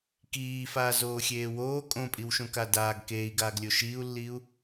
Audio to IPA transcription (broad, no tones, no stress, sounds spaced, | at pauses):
k iː f aː z oː xʲ eː w oː kʼ õ pʼ i w ʃ õ k a d aː ɡ k eː i̯ ɡ aː ɡ lʲ o ʃ iː u̯ lː iː u̯